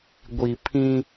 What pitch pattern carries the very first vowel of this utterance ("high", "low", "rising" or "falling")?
low